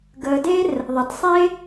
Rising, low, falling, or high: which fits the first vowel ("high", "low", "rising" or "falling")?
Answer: low